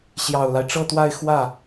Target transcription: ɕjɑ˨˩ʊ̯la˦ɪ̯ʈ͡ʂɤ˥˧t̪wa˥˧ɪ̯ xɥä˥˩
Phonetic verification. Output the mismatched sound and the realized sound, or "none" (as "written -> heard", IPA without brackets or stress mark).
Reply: ɥ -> w